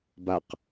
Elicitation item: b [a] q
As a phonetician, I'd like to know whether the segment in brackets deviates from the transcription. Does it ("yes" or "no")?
no